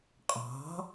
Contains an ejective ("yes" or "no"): yes